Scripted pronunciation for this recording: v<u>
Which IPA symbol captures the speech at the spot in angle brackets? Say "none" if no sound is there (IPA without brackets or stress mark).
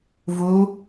u